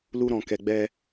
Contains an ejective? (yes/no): no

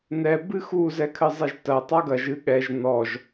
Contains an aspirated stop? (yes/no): yes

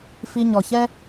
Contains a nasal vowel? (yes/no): no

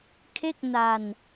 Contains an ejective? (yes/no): no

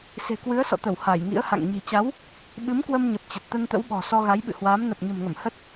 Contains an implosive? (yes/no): yes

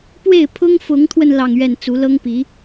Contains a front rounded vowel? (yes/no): no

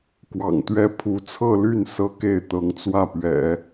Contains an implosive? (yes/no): no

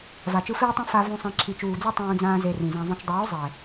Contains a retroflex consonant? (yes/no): no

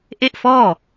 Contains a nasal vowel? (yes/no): no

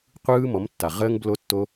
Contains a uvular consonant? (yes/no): yes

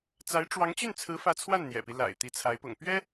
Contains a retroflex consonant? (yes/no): yes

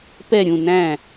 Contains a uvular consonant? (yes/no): no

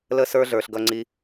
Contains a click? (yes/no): yes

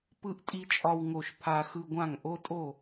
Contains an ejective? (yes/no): yes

